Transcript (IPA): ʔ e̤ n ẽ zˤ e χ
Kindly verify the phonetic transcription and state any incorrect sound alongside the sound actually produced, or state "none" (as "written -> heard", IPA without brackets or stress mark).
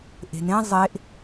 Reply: χ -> ʔ